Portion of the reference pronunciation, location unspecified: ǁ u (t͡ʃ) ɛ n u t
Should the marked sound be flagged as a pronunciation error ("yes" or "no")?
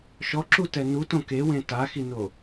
yes